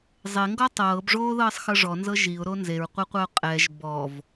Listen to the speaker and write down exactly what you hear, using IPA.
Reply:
zˤ e ŋ ɡ ɔ tˤ ɤː b ʐ oː ð ɤː sˤ x ɤ ʐ ɔ n z ɤ ʒ i ʊ̯ ɾ o n z e ɹ qʷ e qʷ a ʊ̯ qʼ ɛ ʒ b ɔ v

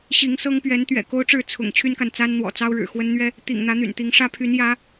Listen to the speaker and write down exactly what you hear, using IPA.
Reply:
ɕ i˨˦ ŋ s ɤ˦ ŋ p ɥ ɛ˨˦ n t̪ ɥ ɛ̰˨˩ k o˦ ʊ̯ ʈ͡ʂ ɻ̩˥˨ t͡sʰ ʊ̰˨˩ ŋ t͡ɕʰ y˦ n k a˨ n t͡s a˦ n n̪ w ɔ̰˨˩ t͡s ɑ˦ ʊ̯ ɻ ɻ̩˨˩ x w ə˦ n n̪ ɥ ɛ˦ | t̪ ḭ˨˩ ŋ n̪ ä˨˦ n̪ y̰˨˩ n t̪ i˨˦ ŋ ʂ ä˦ pʰ y˨˦ n j ä˨˦

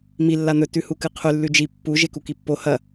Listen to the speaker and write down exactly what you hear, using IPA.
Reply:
m i lː a n̪ ɵ t ʉ h u k ɨ qʰ ʉ lː ʉ d͡ʒ i pː u ʒ e k u k i pː o h ɐ

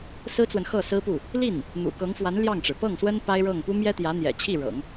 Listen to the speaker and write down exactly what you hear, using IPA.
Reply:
s ɹ̩˥ t͡s w ə˨ n x ɤ˥˩ s ɹ̩˥ p u˥˩ | l i˥˩ n | n̪ ṵ˨˩ k ɤ˧˥ ŋ f w a˧˥ n l j ɑ˥˩ ŋ ʈ͡ʂ ɻ̩˩ p ɤ˥˩ ŋ s w ə˥ n p a˥ ɪ̯ ɻ ɤ˥˩ ŋ p u˥ m j ɛ˥ t̪ j ä˧˥ n̪ j ɛ̰˨˩ t͡ɕʰ i˥˩ ɻ ɤ̰˨˩˦ ŋ

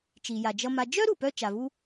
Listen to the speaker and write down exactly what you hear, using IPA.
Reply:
t͡ʃ i˩ j a˩ d͡ʒ ʌ˨ m a˨ d͡ʒ œ˥ ɾ u˩ p œ˥ t͡ʃ a˩ v u˥

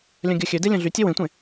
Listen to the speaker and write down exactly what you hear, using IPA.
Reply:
lʲ œ̃ ɡʲ œ xʲ ø d e lʲ œ̃ ɮ y tʲ e w ẽ tʷ ẽ

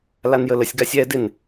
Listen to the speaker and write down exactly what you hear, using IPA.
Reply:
l a n j ə l ə sʲ ɡ a sʲ ɛ d ɪ n

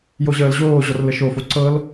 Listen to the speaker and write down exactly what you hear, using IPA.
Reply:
j o ʑ əː l ʑ oː ʑ ɔ r l ə ʃ o f o ǀ ɤ l

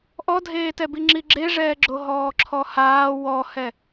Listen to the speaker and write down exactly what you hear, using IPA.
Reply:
ʔ ɔ dʱ eː t ɛ b i ŋ͡ǁ i ɡ͡ǁ e ʐ ɛː ɡ͡ǁ o ɦ ɔː ǁʰ ɔ h aː w ɔ h ɛ

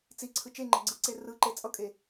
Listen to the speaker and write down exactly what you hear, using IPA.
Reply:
t͡s i ǀʰ ɯ t͡ʃ e ŋ͡ǃ ɛ ɡ͡ǀ ɯ ǀ e r ɯ ǃ e t͡sʼ ʌ kʼ e

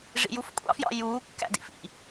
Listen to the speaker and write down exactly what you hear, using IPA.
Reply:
ʐ ḭ j u f kʷʼ ɑ̰ f j ɑ̰ j uː kː æ̰ d ḭ f ḭ

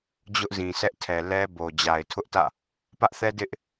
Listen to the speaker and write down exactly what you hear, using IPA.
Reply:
d͡ʑ ʊ˦ ʔ z ĩ˨ sʰ ɛ˦ ʔ tʰ ɛ˨ l ɛ˦ b o˨ d͡ʑ a˨ ɪ̯ tʰ ʊ˦ ʔ t ä̰˦˨ | p ä˦ ʔ θ ɛ˦ d ɪ˦ ʔ

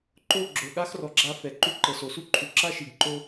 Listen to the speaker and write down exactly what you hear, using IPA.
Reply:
ǃ o˦˨ ɡ͡ǁ o˨ ɠ a˦ x r ɔ˨ ɡ͡ǁ a˧ f ɛ˨ ǃ u˧ ǃ ɤ˨ s o˨ s u˦ ǃʰ u˨ ǁ a˦ ʃ i˨ ɡ ǃ o˦

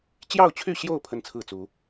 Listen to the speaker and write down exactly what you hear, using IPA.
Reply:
t͡ɕ j ɑ˥˨ ʊ̯ t͡ɕʰ y˥˨ ɕ j o˥˨ ʊ̯ pʰ ə˦ n t͡sʰ ɹ̩˥˨ t͡s u˨˦

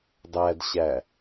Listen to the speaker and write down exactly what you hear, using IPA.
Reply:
dˤ æ d ɕ æ

